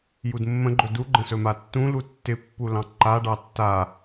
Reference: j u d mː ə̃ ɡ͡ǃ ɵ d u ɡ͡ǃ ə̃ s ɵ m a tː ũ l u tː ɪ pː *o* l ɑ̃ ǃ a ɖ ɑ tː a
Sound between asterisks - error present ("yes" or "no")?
yes